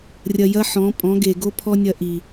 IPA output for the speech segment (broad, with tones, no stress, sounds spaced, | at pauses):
rʲ ɐ˧ j ɐ˦ ħ ɔ̃˨˦ pʼ ɔ̃˨˦ ɡ e˨ ɡ o˦ pʰ ɔ˦ nʲ ɐ˧ ʔ i˨